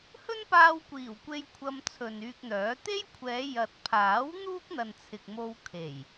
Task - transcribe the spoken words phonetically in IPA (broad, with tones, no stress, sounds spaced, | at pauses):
h ɵ˥ n p aː˧ w kʷ iː˨˩ w kʷ e˧ j kʷʰ ɐ˧ m t͡sʰ ɵ˨ n yː˧ k̚ n̪ œː˨˥ t̪ e˥ j kʷʰ ɛː˨˧ j ɐ˨ t̚ pʰ aː˨˥ w n̪ uː˥ k̚ n̪ ɐ˨ n t͡sʰ ɪ˨ k̚ m o˧ w kʰ e˨˩ j